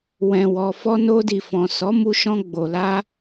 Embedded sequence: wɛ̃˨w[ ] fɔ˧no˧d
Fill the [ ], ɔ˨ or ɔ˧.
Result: ɔ˨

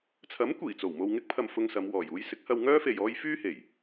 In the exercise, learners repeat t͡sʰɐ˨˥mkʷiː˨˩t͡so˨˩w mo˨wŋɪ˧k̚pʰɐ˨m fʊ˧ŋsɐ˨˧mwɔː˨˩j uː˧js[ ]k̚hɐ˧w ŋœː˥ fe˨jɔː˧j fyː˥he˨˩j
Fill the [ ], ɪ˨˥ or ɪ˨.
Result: ɪ˨˥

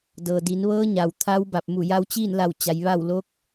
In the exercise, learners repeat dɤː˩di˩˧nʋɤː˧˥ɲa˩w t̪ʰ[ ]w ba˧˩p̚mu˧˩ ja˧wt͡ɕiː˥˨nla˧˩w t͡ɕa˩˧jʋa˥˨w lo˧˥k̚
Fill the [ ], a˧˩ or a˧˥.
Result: a˧˥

